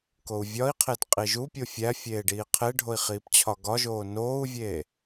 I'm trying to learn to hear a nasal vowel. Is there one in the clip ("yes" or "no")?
no